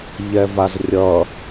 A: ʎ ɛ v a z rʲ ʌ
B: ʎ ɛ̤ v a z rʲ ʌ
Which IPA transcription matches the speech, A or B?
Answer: A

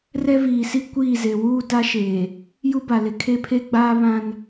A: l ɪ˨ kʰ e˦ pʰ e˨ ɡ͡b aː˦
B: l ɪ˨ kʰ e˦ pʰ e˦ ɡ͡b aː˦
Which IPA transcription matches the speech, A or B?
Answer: B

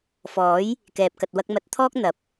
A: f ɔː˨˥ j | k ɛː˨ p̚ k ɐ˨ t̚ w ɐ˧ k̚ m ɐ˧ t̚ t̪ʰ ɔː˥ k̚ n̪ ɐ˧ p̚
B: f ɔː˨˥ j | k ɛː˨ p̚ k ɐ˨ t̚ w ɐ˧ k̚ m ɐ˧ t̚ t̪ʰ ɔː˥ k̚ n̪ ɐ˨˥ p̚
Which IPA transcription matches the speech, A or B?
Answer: B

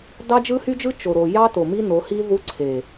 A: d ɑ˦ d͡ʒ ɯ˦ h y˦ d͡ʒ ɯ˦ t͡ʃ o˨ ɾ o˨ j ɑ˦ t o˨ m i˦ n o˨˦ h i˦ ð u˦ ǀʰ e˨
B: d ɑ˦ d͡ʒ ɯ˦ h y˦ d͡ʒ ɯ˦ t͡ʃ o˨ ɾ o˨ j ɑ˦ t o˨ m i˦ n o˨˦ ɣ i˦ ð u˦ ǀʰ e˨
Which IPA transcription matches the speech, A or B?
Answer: A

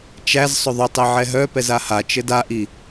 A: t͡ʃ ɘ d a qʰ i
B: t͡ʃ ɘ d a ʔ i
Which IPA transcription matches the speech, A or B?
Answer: B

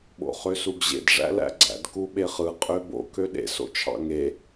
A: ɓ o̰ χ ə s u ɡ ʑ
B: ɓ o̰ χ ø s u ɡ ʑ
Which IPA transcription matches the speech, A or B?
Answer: B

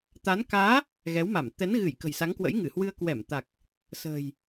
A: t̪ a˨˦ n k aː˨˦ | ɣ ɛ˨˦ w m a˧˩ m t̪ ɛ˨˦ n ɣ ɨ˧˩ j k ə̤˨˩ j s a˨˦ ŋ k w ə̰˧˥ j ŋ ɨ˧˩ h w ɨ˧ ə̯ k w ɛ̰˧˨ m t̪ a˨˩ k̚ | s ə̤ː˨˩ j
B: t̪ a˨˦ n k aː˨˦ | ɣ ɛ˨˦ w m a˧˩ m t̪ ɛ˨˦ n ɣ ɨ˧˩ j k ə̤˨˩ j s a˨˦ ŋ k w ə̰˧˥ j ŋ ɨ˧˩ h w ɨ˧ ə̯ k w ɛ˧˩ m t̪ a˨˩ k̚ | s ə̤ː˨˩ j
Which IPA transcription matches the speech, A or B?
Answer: B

